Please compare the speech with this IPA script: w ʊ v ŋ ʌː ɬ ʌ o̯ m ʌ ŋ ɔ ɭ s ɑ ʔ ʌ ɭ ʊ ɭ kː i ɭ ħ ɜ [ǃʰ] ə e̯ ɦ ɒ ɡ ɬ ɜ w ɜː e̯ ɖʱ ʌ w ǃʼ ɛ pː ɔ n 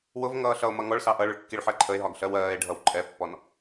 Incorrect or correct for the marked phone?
correct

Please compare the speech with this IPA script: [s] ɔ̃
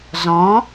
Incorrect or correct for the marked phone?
incorrect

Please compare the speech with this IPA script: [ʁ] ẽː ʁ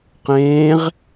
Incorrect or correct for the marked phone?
incorrect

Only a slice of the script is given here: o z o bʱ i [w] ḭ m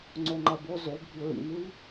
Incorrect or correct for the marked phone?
incorrect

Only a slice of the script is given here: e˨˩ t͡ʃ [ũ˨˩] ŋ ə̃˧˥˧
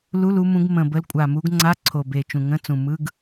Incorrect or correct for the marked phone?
correct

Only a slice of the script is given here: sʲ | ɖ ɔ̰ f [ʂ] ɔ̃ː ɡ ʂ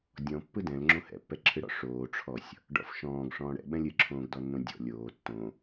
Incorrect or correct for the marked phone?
incorrect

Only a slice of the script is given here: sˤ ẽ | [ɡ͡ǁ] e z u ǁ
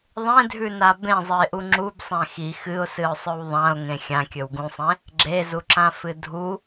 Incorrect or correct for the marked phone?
correct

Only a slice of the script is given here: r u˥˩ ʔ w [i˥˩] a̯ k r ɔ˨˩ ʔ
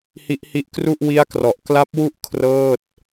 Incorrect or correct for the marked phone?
incorrect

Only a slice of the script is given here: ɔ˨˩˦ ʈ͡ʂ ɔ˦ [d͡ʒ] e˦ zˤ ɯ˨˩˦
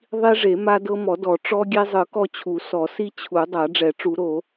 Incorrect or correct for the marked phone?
incorrect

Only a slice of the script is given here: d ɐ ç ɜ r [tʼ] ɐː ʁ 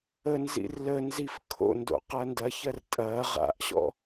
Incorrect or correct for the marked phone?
correct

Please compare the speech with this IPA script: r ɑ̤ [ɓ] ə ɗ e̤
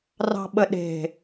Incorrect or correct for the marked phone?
correct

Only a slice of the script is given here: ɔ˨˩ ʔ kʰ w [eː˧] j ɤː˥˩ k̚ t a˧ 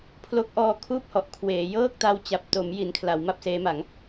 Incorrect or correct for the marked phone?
incorrect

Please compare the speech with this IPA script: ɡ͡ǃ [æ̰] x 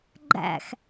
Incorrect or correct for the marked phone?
correct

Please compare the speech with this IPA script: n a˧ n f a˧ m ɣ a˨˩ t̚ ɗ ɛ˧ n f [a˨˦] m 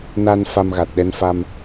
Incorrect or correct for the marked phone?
incorrect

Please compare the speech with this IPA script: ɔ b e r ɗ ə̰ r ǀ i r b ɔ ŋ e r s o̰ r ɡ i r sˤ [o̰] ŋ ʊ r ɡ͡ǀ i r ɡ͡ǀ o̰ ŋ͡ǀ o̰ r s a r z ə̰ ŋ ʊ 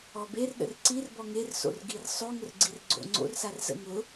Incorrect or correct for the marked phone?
incorrect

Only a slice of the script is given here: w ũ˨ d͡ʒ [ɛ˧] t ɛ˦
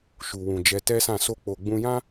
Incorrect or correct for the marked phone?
correct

